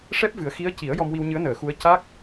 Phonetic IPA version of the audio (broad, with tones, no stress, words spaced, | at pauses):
ʂɛ˦˥p̚ vɨ˨˩˦ə̯xi˧˥ə̯ ci˨˩˦ə̯jɔ˧mwi˧w ɲɨ˧˥ə̯nəː˨˩˨xu˧˥ə̯ ca˦˥k̚